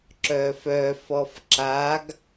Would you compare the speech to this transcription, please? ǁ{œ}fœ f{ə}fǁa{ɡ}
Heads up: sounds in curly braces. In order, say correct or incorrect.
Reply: incorrect: œː, incorrect: ɔ, correct

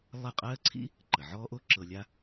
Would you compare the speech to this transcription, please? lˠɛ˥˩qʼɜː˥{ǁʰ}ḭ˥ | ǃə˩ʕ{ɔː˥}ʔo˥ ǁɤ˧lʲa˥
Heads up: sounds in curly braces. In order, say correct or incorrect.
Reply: incorrect: ǀʰ, correct

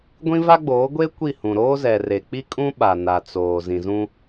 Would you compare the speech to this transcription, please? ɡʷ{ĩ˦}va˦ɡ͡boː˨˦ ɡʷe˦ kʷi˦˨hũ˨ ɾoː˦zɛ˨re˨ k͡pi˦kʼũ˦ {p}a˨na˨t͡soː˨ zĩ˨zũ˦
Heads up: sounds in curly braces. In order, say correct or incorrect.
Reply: correct, incorrect: ɓ

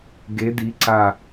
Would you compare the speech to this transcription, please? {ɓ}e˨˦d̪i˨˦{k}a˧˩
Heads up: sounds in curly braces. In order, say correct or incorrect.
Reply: incorrect: ɡ, incorrect: ǀ

